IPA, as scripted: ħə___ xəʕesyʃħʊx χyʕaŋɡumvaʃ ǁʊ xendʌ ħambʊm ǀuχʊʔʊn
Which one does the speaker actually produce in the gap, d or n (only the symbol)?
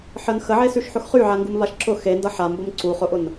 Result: n